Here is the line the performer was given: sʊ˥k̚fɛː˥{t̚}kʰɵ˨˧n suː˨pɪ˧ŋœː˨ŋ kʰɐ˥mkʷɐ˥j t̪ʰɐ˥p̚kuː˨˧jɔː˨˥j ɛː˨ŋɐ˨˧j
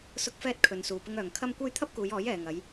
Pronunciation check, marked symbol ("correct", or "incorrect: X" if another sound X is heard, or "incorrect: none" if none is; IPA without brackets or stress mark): correct